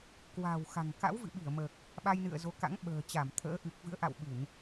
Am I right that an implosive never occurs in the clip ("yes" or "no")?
no